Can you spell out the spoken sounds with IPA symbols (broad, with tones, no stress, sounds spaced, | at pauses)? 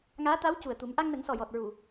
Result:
ŋ aː˧˥ t̪ a˧˥ w c u˨˩ ə̯ t̪ u˨˩˦ m ʔ a˧ ŋ n ə˨˩˦ ŋ s ɔ˨˩ j ɔ˨˩ t̚ ɹ u˨˩˨